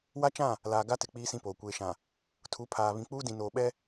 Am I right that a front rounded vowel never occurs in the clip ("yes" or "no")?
yes